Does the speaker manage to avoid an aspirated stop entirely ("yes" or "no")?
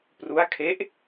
no